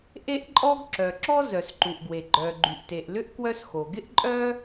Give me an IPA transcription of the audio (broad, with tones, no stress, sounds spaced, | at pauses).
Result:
ʔ e˥ ʔ ǃʼ ɔ˥ ɡ ǁ œ˩ ǁ ɔ˥ z œ˩ s ǃ u˩ ʔ ɡ w e˩ ɡ͡ǃ œː˩ ɡ͡ǃ y˩ ʔ t e˩ ʔ l ʏ˥ ʔ k w œ˥ s x o˩ ɡ ɪ˥ ʔ ǃʼ œː˥